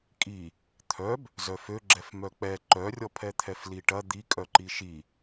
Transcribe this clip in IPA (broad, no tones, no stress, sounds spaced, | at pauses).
kʼ i | t̪ʰ œ b | z œ f ø ɡ͡ǁ ɛ f m œ k͡p ɛ ǃ œ rʲ ɔ pʰ ɛ t̪ʰ ɛ f l i ʈ ɐ d̪ i kʼ œ ǃ i ʃ i